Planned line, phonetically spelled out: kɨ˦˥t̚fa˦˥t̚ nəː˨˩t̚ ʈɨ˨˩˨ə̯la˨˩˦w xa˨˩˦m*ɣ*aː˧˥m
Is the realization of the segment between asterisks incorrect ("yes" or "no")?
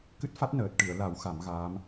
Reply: no